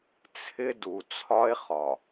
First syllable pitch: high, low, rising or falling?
high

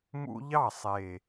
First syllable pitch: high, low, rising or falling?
high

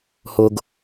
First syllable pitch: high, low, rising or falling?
high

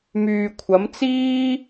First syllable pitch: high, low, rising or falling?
low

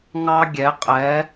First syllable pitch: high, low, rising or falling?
high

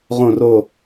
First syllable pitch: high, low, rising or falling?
falling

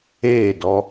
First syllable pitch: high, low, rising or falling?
falling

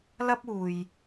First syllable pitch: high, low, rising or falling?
high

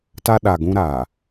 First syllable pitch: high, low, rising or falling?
high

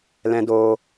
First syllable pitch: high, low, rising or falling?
low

